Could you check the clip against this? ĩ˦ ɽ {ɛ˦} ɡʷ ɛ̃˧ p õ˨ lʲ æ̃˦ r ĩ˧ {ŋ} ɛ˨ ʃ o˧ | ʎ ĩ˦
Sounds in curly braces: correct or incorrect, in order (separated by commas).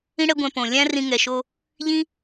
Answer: correct, correct